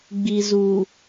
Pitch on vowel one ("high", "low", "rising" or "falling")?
low